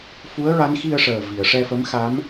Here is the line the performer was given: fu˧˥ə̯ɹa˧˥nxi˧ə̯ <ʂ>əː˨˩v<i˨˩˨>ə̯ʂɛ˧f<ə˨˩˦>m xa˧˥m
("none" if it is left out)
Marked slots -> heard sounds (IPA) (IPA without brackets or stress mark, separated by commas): ʂ, i˨˩˨, ə˧˥